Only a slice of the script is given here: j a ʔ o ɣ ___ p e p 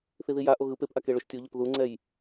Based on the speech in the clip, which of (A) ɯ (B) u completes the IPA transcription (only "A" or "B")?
A